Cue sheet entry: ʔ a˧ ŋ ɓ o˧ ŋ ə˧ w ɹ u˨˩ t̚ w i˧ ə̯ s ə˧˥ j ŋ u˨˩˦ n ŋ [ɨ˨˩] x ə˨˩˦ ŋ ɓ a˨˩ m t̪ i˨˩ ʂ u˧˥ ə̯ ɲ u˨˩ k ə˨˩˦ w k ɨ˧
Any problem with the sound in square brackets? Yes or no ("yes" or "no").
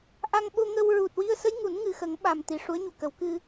no